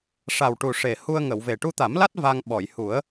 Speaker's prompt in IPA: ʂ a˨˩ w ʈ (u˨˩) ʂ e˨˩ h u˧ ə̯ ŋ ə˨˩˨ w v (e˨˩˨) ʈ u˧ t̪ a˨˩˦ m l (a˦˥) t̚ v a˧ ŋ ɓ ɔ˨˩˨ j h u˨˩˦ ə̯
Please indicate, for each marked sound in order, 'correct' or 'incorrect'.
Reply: correct, incorrect, correct

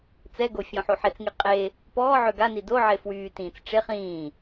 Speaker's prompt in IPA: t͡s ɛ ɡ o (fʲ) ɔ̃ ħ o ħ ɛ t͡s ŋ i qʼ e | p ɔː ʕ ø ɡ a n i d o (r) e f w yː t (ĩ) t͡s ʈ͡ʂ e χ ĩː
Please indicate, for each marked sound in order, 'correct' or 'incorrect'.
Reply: correct, incorrect, incorrect

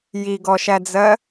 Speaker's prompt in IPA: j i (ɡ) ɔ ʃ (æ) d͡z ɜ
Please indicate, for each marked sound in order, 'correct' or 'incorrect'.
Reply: correct, correct

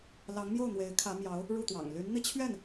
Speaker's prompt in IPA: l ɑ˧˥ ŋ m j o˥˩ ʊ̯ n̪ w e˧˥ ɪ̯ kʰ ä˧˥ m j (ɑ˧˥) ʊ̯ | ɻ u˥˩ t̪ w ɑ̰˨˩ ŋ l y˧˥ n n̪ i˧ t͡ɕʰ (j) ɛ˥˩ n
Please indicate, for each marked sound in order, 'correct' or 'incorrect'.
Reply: correct, incorrect

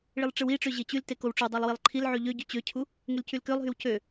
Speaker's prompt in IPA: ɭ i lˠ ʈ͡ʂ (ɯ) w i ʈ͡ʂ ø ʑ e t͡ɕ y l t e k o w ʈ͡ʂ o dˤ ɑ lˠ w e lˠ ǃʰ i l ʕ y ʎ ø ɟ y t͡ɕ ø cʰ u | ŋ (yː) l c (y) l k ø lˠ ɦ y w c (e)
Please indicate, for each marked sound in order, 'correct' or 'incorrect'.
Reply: correct, incorrect, correct, incorrect

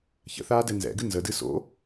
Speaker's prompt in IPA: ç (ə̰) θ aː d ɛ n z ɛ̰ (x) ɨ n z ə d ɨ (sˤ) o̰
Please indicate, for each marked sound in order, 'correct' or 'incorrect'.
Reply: correct, incorrect, incorrect

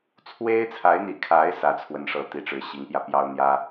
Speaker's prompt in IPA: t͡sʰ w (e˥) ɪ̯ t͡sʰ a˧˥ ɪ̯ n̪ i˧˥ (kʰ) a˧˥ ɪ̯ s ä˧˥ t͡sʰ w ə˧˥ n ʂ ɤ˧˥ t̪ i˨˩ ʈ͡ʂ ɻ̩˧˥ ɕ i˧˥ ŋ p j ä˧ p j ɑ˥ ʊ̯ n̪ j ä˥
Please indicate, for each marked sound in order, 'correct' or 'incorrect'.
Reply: correct, correct

